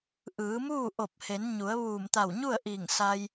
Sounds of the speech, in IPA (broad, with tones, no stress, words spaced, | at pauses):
ʔɯː˩˧muː˥˨ ʔo˧˩p̚he˩˧nɲu˩˧ə̯ ʋuː˧˩mt̪a˧˩wɲu˥˨ə̯ʔiː˧˩ŋ sa˧j